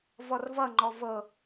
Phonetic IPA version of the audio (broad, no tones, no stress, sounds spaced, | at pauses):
v ɔ r v ʌ ŋ͡ǃ ɔ v ɤ